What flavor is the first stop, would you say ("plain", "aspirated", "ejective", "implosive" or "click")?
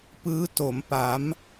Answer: plain